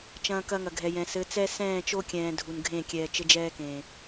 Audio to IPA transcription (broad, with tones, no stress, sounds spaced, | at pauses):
t͡ʃ ɐ̃ː˨ k ɐ˦ ŋ ɐ˨ ɡʱ ɛ˨ j ɛ̃˨ s ɘ˨˦ t͡s ɛ˦ s ɛ̃ː˦˨ t͡ʃ o˦ kʲ ɛ̃ː˨ dʱ u˨ n ɡʱ ẽ˦˨ kʲ ɛː˨ t͡ʃ ɘ˦ d͡ʒ ɛː˦ k ẽː˨